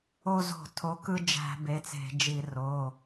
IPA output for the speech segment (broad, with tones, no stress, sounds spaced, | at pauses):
o˧˩ z o̤˧˩˧ tʰ o˩˧˩ k ɯ˦ d͡ʒ æ̤˧˩˧ b e˩˧˩ t͡s e̤˧˩˧ d͡ʒ i˧˩˧ r o˩˧˩